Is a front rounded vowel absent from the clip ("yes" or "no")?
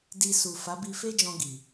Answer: yes